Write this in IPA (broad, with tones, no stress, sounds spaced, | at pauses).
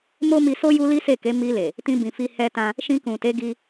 m o˦ m i˧ s o˦ j u˦ l i˦ s e˦˨ k e˨˦ m i˧ l e˨ | t ĩ˧ b ĩ˨ f i˧ h ɛ˧ t ã˧ | ʃ ĩ˧ k ũ˨ t e˨˦ ɡ i˧